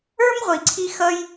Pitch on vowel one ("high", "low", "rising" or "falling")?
high